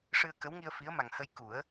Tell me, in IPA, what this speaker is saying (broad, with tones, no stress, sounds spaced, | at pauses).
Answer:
ʂ ɨ˧ ə̯ k ə˧˥ w ŋ i˧ ə̯ f i˧˥ ə̯ m a˨˩ ŋ h ə˧ j k u˨˩˦ ə̯